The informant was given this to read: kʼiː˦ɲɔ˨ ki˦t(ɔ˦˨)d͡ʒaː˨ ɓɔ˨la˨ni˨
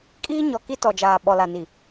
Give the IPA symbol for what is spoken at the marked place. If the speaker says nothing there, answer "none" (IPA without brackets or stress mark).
ɔ˨